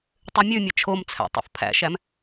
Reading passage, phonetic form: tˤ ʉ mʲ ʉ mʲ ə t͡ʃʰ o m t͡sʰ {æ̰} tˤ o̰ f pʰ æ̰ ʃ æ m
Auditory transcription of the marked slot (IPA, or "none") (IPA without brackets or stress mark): æ̰